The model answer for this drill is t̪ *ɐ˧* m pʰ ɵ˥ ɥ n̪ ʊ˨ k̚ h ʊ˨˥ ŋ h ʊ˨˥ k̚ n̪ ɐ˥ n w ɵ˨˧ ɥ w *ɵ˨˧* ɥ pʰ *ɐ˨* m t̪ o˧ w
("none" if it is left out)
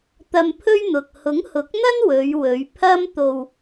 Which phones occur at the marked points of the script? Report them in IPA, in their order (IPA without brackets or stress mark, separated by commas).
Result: ɐ˧, ɵ˨˧, ɐ˥